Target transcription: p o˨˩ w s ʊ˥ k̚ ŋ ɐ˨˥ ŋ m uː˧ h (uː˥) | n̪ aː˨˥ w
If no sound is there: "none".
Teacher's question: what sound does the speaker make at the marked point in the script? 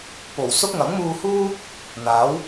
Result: uː˥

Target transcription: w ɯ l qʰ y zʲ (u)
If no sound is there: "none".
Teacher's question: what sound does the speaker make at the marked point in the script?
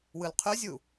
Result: u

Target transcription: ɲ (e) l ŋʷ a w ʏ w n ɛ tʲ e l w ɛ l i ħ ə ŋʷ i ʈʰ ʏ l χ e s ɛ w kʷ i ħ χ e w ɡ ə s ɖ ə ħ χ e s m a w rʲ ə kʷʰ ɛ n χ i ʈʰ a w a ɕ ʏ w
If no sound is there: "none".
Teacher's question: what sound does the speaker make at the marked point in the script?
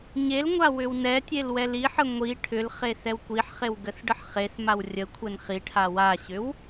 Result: e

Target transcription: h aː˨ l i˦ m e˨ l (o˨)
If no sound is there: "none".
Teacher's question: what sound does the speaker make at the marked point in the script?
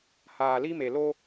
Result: o˦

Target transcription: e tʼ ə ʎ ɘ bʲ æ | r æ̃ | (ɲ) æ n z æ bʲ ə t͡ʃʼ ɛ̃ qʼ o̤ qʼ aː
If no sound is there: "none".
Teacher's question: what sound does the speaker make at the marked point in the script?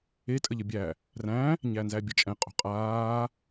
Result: ɲ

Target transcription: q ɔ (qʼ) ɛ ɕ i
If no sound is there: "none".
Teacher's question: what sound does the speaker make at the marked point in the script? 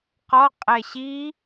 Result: qʼ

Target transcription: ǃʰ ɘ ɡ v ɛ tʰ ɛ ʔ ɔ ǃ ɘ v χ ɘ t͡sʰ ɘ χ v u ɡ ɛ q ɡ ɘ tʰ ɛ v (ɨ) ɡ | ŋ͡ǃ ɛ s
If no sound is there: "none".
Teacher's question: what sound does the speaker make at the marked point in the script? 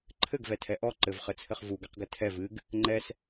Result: ɨ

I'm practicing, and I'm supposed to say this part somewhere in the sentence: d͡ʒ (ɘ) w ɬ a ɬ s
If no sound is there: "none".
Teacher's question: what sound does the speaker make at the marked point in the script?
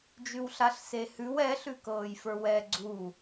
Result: ʉ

